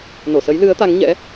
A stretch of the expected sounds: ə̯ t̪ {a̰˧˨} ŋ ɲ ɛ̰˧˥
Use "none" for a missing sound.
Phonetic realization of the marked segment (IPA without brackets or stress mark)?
a˨˦